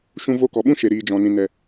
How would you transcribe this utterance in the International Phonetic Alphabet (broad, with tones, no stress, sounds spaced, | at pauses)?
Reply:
ʃ ũ˧ v o˧ k ɔ˨ ɓ ũ˦ ʃ e˨ ɾ iː˨ d͡ʒ ɔ̃˨ n ĩ˨ n ɛ˨